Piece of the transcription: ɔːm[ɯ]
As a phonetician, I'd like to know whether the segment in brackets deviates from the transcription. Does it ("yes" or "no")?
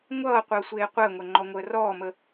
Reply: yes